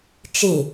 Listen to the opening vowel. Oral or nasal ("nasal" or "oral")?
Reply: oral